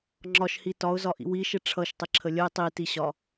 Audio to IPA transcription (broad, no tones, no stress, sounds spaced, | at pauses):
ŋ͡ǁ ɒ ʃ h i t ɒ ʊ̯ z ɒ ʔ ḭ w i ʃ ɪ ʈ͡ʂʰ ʌ ʃ tˤ ɪ ǁʰ ə lʲ ə ɪ̯ tˤ i t i ɕ ɒ